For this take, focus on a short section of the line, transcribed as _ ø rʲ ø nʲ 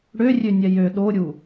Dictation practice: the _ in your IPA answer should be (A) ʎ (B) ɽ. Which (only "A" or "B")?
B